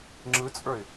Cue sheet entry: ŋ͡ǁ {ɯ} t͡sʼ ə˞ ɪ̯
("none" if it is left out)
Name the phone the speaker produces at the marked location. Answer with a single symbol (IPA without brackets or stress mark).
ɯ